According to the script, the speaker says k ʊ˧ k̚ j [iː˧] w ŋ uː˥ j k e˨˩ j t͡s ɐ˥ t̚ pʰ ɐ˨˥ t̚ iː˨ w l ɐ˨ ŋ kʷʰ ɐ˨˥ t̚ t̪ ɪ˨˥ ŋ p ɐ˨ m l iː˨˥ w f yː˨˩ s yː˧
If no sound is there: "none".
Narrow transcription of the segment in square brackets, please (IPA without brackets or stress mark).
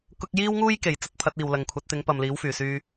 iː˥